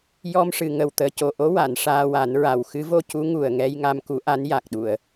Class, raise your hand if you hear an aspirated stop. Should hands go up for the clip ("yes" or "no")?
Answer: no